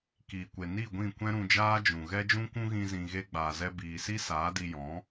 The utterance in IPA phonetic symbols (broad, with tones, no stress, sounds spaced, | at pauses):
k iː˨ kʷ e˨ n i˦˨ ɡʷ ĩ˦˨ kʷ ɛ̃˦ ɾ ũ˧ d͡ʒ aː˦ d͡ʒ ũ˨ ɣ ɛ˦ d͡ʒ ũ˦ kʷ ũ˦ ɣ ĩ˦ z ĩ˧ ɣ e˦ ɡ͡b aː˨ z ɛ˧ b iː˨ s i˦ s aː˨˦ d i˧ j ɔ̃˨˦